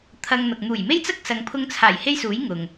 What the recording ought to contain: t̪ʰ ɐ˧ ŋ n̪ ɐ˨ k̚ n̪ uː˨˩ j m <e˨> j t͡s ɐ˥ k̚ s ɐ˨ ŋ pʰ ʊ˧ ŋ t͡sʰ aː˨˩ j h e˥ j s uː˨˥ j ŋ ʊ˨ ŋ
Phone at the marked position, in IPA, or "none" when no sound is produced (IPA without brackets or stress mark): e˥